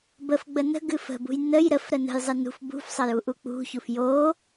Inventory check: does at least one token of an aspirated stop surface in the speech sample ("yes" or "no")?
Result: no